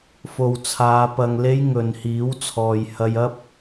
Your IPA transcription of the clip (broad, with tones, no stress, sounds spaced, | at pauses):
f o˨ w t͡sʰ aː˨˧ p ɐ˨ ŋ l e˧ j ŋ ɵ˨ n h iː˨˥ w t͡sʰ ɔː˨ j h ɐ˧ j ɐ˥ p̚